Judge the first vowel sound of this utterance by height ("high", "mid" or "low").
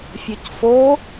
mid